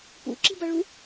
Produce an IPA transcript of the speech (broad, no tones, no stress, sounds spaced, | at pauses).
p ṵ ǁ i̤ b ʌ ɭ u